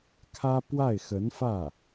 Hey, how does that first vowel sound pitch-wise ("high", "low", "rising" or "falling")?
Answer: high